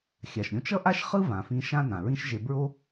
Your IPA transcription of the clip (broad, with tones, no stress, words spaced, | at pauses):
xʲa˩ʃɾʲõ˧t͡ʃ ʌ˥ʔa˥ʃχɯ˥ vã˩fĩ˧ ʃã˥nã˩ɹĩ˥ʃʒe˧ bɹo˥